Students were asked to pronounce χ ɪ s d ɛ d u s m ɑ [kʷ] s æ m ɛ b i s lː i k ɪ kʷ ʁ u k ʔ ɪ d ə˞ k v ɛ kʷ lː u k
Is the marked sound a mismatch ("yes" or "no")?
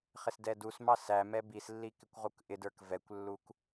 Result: yes